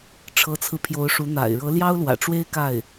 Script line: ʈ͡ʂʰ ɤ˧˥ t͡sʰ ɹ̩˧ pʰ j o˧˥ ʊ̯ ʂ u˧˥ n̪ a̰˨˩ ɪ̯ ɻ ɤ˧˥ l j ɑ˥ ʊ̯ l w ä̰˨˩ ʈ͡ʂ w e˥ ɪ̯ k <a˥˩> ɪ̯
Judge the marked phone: correct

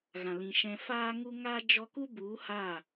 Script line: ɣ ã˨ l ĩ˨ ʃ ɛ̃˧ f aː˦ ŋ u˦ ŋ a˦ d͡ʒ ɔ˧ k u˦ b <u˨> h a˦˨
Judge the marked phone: incorrect: u˨˦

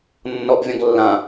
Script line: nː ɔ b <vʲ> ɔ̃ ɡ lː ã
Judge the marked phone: correct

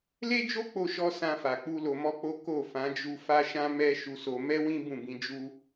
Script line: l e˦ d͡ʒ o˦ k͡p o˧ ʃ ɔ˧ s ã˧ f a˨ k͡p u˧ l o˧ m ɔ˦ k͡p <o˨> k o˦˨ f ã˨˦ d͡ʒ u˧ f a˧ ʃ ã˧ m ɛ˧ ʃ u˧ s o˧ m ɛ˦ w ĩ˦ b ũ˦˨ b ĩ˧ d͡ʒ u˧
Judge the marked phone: incorrect: o˦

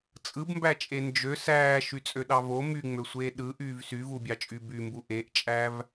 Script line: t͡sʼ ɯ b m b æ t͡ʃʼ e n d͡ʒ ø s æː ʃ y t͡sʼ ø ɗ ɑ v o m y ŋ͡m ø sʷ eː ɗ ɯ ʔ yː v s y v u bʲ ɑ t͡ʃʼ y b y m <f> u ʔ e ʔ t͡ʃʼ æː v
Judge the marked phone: incorrect: b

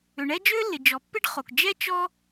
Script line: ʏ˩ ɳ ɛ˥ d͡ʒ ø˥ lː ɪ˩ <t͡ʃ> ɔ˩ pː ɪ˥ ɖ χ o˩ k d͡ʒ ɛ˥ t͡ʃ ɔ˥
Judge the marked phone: incorrect: d͡ʒ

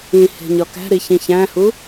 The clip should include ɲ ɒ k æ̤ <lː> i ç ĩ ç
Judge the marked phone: incorrect: ɾ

